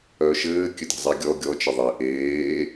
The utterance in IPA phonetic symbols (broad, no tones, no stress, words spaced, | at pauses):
œʃɘː kʲɘde̤zˤeɡʲɔ ɡʲɔ t͡ʃɘðˤe ʔeː